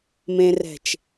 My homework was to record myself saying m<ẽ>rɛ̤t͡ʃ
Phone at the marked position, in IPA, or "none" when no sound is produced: ẽ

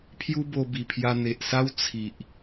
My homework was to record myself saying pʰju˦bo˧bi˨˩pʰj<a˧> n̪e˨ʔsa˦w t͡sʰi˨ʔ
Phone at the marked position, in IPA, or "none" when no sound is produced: a˧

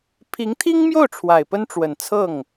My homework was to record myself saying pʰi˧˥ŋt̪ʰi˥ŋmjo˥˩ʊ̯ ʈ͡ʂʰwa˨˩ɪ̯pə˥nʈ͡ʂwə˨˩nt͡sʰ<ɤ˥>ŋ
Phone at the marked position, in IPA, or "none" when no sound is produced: ɤ˥˩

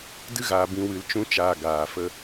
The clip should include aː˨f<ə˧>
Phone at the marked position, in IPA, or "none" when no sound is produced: ə˧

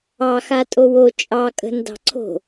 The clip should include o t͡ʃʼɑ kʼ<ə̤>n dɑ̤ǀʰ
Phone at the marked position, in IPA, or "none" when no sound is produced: ə̤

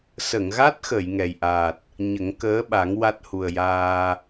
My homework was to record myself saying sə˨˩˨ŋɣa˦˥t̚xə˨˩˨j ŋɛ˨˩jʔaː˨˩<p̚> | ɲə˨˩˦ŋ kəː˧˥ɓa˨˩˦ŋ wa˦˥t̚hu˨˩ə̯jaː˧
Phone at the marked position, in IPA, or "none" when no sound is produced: t̚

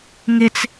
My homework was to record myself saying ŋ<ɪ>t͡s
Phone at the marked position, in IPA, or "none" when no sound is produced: ɪ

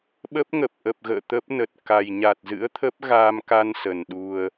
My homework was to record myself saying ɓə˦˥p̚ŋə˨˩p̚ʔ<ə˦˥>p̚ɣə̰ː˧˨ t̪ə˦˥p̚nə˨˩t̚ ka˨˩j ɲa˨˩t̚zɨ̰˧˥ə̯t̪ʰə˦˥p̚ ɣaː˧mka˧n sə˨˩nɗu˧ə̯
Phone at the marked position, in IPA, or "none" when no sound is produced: ə˨˩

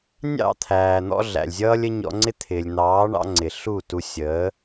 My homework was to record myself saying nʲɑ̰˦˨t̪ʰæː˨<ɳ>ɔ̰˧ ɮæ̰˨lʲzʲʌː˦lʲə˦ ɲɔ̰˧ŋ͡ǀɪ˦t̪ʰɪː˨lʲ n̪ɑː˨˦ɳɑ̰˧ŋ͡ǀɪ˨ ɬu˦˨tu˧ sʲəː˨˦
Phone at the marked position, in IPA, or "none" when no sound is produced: n̪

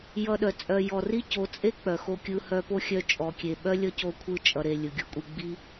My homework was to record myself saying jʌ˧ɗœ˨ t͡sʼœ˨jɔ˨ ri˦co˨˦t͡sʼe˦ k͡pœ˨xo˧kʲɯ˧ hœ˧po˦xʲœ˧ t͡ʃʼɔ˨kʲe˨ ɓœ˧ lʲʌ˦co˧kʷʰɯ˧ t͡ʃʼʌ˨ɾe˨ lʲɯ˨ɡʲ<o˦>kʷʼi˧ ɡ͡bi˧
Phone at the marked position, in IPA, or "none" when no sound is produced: o˦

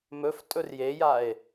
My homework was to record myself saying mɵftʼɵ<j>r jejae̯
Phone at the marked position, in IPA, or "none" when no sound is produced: none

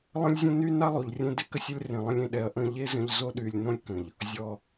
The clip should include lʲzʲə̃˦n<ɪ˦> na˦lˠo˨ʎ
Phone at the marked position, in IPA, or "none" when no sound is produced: y˦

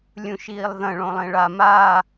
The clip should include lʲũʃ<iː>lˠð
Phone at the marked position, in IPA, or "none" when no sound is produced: iː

